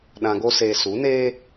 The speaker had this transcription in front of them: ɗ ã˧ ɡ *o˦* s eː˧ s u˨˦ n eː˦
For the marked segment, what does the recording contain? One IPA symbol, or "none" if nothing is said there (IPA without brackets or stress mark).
o˦